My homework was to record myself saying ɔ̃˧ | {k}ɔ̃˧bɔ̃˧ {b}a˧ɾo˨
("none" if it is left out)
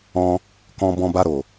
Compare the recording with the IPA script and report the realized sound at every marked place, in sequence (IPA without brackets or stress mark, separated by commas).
k, b